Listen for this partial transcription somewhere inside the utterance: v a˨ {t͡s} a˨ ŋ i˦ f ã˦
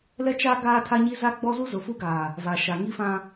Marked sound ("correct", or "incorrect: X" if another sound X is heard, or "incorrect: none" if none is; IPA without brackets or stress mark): incorrect: ʃ